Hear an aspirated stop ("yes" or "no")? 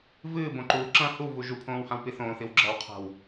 yes